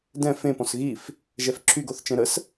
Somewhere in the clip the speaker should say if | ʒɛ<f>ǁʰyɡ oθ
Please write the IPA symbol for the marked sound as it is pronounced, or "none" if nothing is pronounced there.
f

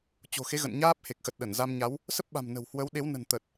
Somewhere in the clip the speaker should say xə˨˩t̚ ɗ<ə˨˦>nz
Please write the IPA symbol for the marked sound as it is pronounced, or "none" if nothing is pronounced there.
ə˧˩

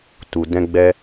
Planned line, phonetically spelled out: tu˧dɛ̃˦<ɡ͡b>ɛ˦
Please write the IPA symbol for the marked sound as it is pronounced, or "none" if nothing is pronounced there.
ɡ͡b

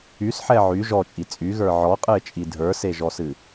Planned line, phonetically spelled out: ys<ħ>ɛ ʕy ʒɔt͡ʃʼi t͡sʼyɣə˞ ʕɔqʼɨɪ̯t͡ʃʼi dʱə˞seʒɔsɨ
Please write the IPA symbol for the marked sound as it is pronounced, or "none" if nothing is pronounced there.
ħ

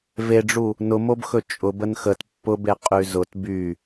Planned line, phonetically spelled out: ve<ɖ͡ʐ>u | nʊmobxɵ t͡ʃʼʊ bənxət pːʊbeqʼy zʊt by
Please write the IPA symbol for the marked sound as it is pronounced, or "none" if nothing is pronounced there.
ɖ͡ʐ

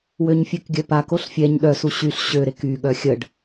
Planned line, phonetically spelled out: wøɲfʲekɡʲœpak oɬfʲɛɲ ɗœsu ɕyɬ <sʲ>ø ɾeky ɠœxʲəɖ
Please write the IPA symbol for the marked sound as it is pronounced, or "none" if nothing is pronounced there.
ɕ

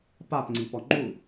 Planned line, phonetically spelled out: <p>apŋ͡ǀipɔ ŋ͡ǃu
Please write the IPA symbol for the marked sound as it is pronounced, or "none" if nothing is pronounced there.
p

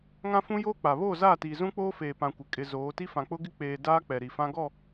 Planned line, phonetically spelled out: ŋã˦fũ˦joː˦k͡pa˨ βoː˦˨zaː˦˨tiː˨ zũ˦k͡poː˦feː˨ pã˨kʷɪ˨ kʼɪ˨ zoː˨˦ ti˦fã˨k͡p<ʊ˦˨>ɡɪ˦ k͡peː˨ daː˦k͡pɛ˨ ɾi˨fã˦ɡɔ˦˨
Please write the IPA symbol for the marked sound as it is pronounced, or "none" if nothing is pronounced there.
ʊ˦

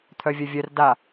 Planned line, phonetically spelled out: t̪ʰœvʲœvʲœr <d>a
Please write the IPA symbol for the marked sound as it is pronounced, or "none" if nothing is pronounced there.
d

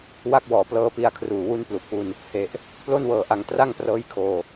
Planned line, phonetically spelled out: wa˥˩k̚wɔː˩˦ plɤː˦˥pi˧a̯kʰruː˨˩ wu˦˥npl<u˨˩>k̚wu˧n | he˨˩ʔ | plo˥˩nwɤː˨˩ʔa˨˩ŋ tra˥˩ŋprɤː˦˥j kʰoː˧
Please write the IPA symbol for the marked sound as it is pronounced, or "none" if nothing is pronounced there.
u˨˩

